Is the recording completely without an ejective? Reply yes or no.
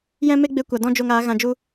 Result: yes